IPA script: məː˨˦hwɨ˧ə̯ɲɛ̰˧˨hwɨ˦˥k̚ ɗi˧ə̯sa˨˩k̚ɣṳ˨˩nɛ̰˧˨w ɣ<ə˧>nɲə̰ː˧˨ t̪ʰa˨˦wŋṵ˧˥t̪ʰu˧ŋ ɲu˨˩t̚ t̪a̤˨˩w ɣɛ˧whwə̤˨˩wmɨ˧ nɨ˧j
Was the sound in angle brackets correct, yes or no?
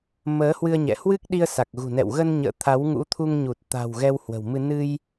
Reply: yes